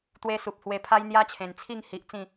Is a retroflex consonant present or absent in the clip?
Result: absent